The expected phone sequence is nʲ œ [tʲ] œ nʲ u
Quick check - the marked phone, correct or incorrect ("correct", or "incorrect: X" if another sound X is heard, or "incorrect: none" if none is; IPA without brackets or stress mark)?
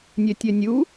correct